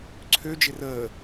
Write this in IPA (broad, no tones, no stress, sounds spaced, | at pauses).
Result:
ǀʰ ø d͡ʒ ɪ r əː